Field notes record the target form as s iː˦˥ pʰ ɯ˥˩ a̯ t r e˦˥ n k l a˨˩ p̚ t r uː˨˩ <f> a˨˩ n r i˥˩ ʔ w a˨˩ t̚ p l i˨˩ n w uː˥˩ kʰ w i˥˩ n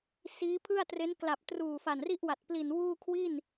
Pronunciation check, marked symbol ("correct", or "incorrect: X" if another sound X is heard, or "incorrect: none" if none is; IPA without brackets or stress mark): correct